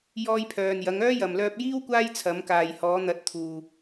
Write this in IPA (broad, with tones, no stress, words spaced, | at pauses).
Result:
jɔː˧jpʰœː˨njɐ˨˧ŋœː˥ jɐ˨mlœː˧p̚jiː˥w kʷaː˥jt͡sʰɐ˨˧mkaː˨j hɔː˨˧n̪ɐ˨˥t̚t̪ʰuː˨